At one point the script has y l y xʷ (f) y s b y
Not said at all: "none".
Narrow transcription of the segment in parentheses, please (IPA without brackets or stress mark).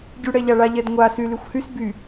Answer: h